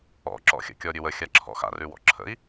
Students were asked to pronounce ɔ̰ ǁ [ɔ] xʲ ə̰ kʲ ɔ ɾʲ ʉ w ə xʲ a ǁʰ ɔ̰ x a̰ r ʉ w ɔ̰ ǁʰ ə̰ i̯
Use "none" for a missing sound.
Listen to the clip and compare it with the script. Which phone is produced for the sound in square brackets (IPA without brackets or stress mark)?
ɔ̰